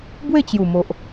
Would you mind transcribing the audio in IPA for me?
b w e˥˧ t͡ɕ j u˨˩ m o˨ ʔ

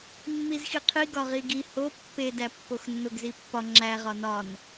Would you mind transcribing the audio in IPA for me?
mː i z x i qʰ i ɡ ɒ ʁ i ɡ i h o pː e d æ pː o x nː o ɡ z i pː ɒ ŋ͡ǁ æ ʁ ɒ n ɒ n

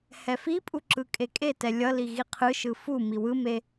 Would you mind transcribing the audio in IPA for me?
h ɛ f i pʼ u ǁ ɯ kʼ e kʼ e t ɛ lʲ ʌ l i ɣ i qʰ ɯ ʃ ɯ f u m i w ɯ m e

